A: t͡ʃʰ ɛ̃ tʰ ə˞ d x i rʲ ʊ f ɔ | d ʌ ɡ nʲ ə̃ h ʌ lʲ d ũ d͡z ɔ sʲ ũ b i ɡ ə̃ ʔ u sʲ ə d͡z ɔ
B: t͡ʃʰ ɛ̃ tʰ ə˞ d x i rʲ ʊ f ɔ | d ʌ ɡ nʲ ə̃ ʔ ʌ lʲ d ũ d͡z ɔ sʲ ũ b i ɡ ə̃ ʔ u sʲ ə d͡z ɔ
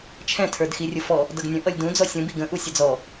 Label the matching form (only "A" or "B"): B